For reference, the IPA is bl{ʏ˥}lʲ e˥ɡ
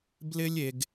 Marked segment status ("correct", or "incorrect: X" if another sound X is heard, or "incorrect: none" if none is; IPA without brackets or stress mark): incorrect: ɪ˥